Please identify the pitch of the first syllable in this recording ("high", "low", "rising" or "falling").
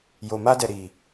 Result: low